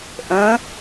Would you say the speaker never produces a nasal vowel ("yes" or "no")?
no